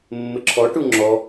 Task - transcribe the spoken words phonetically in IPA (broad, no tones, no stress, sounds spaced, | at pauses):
mː ɪ ǁʰ ɔ ʈ u ŋ͡ǁ ɔ